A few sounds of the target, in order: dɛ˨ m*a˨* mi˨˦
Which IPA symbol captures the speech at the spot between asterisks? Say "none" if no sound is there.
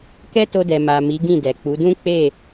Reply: a˨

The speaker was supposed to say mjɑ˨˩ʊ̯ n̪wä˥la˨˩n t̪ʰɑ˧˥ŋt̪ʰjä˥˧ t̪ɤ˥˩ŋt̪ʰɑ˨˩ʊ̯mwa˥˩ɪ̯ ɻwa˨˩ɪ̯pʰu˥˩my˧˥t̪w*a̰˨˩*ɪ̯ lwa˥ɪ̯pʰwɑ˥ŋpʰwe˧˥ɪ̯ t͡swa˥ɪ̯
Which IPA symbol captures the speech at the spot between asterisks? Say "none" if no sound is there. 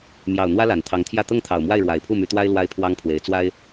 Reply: a˥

